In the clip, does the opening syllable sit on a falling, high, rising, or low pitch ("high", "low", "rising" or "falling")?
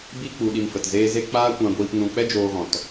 high